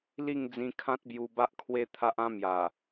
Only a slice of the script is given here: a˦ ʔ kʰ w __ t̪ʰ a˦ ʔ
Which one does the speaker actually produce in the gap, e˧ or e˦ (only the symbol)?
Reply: e˦